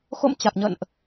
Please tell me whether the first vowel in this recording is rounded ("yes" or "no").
yes